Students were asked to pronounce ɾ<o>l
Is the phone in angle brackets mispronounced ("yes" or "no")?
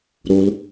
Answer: no